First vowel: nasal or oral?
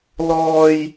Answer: oral